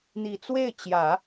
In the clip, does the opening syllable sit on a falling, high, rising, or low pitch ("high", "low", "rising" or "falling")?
low